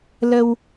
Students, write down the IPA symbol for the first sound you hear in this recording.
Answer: l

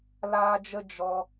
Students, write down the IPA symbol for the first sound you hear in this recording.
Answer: l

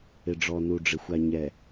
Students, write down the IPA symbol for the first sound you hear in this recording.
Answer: ɪ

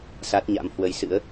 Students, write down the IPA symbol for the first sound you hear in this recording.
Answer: s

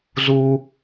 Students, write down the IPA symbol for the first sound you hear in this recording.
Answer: z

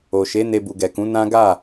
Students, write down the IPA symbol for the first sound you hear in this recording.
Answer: o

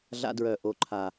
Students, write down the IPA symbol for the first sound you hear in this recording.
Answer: ɮ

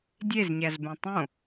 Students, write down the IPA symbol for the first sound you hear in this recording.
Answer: dʲ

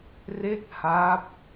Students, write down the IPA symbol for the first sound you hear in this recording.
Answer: r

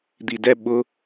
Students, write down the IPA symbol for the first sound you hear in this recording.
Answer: d̪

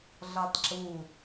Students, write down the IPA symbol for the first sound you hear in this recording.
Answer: ɮ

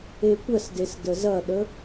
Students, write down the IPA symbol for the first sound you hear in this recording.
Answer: e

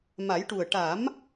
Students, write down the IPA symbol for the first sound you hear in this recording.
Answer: m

